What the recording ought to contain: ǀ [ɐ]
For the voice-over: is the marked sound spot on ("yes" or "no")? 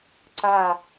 no